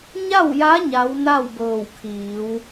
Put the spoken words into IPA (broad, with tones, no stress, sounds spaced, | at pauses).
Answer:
ɲ a˥˨ w j a˧˥ ɲ a˧˥ w n a˥˨ w b ɤː˧˩ w kʰ iː˩˧ w